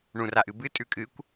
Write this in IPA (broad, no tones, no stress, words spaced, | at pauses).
ɳũraʔɨbɨ tʼʉkʼɨkʷ